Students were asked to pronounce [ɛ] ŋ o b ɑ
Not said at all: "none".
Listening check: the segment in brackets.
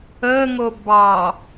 ə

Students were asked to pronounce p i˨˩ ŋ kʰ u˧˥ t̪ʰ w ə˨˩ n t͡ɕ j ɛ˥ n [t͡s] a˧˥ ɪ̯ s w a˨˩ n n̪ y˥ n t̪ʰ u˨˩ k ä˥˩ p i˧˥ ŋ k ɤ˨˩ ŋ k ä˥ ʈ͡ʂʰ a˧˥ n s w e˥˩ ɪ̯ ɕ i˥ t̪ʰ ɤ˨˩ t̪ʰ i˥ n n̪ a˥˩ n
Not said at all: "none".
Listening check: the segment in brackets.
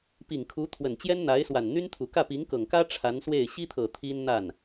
n̪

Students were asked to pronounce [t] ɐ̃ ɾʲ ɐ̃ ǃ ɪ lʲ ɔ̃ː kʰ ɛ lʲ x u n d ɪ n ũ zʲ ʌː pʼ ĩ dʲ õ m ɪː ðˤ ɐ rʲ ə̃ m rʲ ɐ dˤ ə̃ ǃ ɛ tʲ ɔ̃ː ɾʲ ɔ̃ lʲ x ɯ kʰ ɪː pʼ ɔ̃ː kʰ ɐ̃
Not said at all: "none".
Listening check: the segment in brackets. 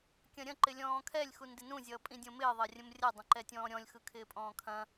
kʲ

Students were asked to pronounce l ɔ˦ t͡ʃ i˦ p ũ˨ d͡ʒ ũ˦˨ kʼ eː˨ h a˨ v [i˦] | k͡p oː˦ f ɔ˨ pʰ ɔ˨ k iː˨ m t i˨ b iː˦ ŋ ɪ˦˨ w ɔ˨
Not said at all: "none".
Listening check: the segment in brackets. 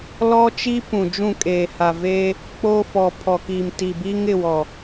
e˦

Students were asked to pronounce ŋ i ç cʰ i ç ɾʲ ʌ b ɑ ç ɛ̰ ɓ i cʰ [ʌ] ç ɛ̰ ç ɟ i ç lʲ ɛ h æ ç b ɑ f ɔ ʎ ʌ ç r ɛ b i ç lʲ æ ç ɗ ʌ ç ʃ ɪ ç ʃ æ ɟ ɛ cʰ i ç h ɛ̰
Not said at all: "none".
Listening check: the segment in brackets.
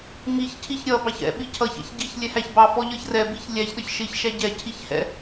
ʌ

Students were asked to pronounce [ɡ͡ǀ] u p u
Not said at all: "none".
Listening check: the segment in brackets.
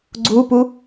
ɡ͡ǀ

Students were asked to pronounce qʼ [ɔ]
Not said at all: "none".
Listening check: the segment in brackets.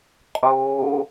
o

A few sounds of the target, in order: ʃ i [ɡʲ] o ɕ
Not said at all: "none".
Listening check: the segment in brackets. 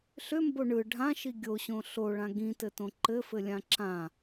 ɡʲ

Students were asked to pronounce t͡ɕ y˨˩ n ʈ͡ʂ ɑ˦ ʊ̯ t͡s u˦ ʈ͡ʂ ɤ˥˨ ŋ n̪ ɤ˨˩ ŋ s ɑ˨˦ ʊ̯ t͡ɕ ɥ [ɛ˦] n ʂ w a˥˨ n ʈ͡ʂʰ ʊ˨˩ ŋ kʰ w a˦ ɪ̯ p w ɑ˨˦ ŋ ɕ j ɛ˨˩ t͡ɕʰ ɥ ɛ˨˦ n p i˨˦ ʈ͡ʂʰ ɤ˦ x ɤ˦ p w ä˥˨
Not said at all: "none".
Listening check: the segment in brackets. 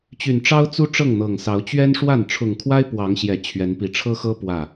ɛ˦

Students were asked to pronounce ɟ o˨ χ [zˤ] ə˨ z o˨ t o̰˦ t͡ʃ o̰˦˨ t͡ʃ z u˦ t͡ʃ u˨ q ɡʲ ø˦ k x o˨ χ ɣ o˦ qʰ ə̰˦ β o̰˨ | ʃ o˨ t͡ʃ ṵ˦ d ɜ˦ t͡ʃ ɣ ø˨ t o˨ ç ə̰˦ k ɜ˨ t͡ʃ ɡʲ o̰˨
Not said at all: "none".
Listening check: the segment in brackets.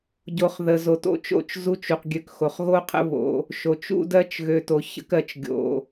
ð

